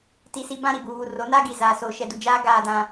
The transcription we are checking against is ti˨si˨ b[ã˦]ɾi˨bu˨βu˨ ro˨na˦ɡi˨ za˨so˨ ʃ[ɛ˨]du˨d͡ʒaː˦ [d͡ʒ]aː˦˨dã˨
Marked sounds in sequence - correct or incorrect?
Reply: correct, correct, incorrect

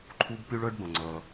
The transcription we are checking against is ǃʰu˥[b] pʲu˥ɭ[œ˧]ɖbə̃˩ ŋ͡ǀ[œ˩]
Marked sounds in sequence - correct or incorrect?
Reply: correct, incorrect, correct

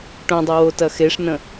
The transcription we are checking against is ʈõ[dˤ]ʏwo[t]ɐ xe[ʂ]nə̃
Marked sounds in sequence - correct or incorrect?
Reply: correct, correct, correct

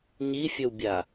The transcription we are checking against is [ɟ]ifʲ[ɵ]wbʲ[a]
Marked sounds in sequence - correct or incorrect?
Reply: incorrect, correct, correct

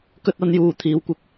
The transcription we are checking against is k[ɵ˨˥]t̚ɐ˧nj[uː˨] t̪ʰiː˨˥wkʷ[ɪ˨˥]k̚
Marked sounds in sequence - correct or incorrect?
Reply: incorrect, correct, incorrect

